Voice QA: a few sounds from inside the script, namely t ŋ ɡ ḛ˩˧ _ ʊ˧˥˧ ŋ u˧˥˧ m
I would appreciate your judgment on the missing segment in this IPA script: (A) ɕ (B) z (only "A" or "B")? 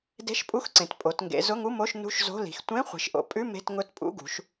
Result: B